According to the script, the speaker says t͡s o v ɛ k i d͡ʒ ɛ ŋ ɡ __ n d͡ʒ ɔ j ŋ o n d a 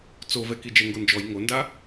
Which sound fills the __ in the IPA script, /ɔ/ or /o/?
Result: o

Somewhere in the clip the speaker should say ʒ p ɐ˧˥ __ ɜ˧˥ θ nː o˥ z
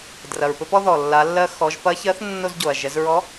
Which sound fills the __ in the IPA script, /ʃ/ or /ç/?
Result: ç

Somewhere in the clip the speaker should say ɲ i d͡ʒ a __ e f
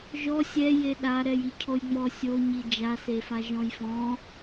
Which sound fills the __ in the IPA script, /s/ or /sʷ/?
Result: s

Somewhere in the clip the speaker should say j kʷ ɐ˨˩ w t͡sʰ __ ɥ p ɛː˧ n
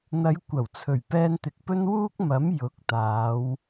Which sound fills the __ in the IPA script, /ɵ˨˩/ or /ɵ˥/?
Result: ɵ˨˩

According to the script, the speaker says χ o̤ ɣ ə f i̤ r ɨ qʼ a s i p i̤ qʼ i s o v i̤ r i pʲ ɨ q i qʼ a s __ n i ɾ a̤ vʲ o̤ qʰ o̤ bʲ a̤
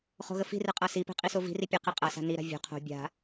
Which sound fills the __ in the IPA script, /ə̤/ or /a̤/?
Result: a̤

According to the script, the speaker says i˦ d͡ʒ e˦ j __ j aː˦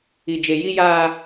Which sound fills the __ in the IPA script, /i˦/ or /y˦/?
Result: i˦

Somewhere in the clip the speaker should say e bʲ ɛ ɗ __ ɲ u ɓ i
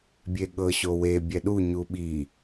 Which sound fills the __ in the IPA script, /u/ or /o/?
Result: u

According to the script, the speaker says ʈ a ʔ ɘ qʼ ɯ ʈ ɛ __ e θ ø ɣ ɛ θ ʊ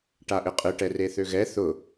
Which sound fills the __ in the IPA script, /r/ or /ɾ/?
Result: r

